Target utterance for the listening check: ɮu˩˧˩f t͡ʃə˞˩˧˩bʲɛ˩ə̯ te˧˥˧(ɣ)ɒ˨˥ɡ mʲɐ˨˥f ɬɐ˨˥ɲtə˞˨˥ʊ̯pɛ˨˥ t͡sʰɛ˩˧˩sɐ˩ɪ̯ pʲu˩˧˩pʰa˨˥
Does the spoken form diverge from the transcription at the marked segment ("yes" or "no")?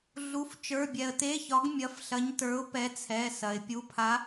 yes